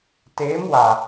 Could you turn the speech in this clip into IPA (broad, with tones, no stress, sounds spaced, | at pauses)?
t eː˨˦ m w a˨